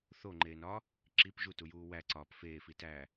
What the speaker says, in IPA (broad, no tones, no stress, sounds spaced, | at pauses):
θ o ŋ͡ǃ eː n ɒː | ǁ i p ʒ u t u j uː w æ ǀ ɒː p f eː f i t æː